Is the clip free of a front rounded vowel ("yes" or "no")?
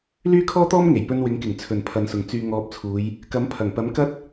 no